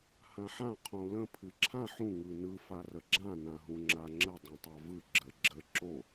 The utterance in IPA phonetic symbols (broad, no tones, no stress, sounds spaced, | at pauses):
h ã ħ ã qʰ õ l ə̃ pʰ ɨ ǁʰ ã ħ ũ ŋ ɯ n ɯ f a r ə ɡ͡ǁ ã n ã ɦ ũ ŋ͡ǁ a ŋ͡ǁ ə dˤ ũ tˤ a v ɯ ɡ͡ǁ ə ɡ͡ǁ ə ǁ o